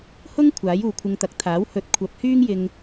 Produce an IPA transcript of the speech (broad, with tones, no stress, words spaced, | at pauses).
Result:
hʊ˥ŋ kʷʰaː˨˥juː˨kʷʰɪ˧ŋt̪ɐ˨˥k̚ t̪ʰaː˨˥whɵ˨t̚kʷʰɐ˨˥p̚ hyː˥ŋjɪ˧ŋ